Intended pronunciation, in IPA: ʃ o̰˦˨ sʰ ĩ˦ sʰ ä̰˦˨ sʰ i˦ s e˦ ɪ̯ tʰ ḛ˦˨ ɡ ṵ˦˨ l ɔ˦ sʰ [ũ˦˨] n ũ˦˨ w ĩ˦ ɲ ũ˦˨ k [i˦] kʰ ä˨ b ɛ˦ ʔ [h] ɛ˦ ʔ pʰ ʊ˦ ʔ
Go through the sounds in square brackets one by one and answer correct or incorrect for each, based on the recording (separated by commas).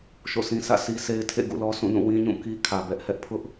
correct, correct, correct